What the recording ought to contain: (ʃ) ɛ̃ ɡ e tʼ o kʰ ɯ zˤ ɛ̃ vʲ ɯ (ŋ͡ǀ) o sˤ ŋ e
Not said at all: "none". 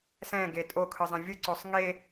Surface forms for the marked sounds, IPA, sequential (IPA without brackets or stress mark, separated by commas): s, ǀ